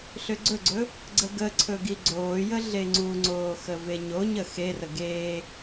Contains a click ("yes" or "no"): yes